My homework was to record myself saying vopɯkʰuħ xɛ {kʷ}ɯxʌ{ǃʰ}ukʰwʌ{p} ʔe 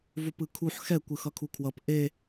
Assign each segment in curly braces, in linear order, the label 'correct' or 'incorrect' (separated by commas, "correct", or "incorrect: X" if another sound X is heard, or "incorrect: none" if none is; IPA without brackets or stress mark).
correct, incorrect: kʰ, correct